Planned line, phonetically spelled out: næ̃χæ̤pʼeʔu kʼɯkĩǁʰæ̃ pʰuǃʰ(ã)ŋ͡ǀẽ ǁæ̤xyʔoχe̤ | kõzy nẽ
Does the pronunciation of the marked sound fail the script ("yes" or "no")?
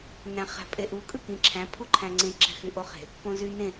yes